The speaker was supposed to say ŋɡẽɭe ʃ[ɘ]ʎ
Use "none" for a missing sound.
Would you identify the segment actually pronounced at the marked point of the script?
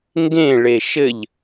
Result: ɘ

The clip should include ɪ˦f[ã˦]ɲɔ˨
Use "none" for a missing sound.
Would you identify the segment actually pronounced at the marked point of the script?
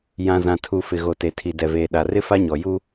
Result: a˦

